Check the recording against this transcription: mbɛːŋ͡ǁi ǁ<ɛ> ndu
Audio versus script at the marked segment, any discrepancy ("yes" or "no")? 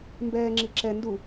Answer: no